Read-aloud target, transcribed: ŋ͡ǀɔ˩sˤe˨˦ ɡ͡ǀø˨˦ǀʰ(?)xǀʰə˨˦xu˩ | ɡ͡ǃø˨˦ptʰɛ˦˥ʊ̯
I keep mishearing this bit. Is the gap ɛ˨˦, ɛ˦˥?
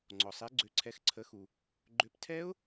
ɛ˨˦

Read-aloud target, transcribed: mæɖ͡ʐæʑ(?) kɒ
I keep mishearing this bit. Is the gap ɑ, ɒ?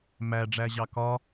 ɑ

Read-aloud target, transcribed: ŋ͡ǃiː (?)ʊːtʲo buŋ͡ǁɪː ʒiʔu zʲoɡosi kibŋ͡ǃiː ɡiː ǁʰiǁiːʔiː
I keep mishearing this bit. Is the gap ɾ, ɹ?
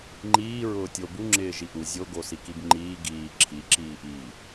ɹ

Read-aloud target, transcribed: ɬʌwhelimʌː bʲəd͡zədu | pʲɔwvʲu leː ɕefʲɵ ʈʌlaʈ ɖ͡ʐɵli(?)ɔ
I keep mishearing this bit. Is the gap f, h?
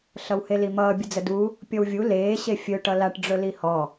h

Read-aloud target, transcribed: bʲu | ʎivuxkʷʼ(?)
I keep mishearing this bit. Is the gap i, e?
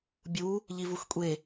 e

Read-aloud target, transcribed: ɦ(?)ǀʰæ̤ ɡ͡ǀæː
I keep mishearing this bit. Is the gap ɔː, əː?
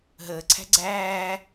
əː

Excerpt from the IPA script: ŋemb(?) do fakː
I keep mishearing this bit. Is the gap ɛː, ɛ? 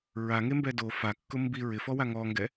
ɛ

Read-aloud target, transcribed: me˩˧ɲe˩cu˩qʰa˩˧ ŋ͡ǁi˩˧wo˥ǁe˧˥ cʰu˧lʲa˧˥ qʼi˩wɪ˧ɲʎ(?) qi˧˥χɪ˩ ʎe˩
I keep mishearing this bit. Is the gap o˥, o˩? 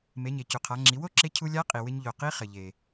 o˩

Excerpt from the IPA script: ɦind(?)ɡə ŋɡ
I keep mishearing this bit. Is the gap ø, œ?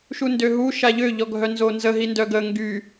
œ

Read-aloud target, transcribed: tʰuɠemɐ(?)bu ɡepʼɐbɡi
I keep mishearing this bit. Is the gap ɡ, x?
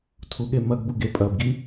ɡ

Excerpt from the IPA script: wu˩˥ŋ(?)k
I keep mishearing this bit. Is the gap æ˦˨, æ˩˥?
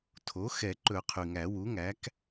æ˩˥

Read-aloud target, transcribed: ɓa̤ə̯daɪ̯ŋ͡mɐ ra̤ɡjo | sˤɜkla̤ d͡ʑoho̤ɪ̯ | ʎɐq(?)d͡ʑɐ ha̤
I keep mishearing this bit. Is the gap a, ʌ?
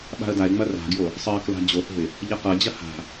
ʌ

